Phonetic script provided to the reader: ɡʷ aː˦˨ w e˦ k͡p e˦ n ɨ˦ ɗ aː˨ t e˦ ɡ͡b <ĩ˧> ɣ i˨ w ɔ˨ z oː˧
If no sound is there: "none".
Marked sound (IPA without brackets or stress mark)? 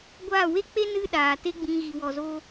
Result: ĩ˧